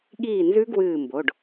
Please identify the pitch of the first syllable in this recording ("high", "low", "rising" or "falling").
falling